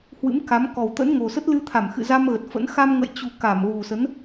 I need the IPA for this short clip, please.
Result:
h w ɨ̰˧˥ m k a˨˦ m k ɔ˨˩ w t̪ ə̰˧˥ n ŋ o˨˩ s ə˦˥ t̚ l ɨ˧ t̪ʰ a˧˩ m x ɨ̰˧˨ z a˧ m ɣ ə˨˩ t̚ f ə̰˧˥ n x a˧ m ŋ ə̰ː˧˨ j t͡ɕ u˨˩ k a˧˩ m ɣ u˨˩ s ə˨˦ n

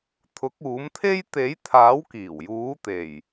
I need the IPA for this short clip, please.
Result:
t̪ʰ ʊ˨˥ k̚ uː˨˥ m t̪ʰ e˥ j t̪ e˨˥ j t̪ʰ aː˨˥ w k iː˨˩ w j uː˨˥ t̪ e˨˩ j

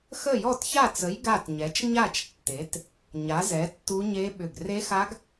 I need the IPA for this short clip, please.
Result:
x ə˥˨ j ɔ˥˨ t ç a˥˨ t͡s ə˨˥ j ɡ a˥˨ t ɲ ɛ˨˥ t͡ʃ ɲ a˥˨ t͡ʃ tː e˨˥ t | ɲ a˨˥ z ɛ˨˥ tː u˦˥ ɲ e˦˥ ɓ ʏ˧˩ ɡ r e˦˥ x a˦˥ ɡ

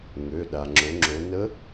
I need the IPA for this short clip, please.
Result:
ŋ ø˩˧˩ ɗ a˩ ŋ͡ǁ o˩˧ ŋ͡ǁ o˩˧ n ə˧˥

